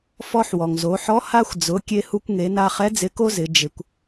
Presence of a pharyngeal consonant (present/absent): present